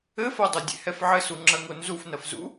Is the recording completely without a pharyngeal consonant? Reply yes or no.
no